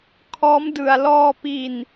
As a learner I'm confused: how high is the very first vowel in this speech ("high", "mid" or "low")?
mid